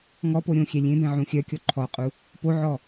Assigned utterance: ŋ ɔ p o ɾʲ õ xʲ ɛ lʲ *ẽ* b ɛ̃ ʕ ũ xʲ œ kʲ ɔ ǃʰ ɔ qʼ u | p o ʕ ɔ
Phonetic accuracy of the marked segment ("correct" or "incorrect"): correct